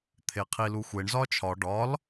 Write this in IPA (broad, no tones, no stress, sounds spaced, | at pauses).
t̪ʰ e qʰ i l u xʷ e ɳ z ɒ t͡ʃʰ ɒ ɖ ɒ l